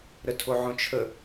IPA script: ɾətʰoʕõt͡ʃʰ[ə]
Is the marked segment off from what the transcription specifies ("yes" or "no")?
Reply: no